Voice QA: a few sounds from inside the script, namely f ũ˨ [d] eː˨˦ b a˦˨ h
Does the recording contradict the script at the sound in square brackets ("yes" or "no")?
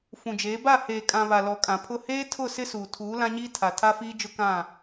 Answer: yes